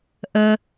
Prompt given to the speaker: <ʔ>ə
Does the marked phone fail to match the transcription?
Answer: no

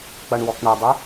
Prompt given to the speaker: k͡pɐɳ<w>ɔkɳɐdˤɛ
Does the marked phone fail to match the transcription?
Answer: no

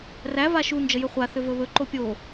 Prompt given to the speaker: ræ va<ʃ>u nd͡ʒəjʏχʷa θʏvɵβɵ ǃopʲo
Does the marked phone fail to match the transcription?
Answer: no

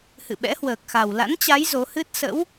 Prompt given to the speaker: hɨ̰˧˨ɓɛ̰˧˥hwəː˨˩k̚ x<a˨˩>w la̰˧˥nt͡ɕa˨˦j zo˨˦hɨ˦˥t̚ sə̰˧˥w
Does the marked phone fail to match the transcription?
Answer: no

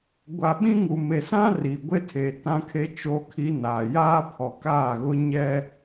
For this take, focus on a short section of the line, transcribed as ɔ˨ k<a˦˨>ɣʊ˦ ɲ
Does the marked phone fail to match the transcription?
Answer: yes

